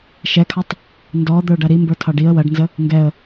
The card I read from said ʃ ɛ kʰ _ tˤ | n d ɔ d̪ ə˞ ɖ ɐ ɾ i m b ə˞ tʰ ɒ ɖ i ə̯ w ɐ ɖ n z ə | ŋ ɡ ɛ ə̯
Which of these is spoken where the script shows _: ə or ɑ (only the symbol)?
ɑ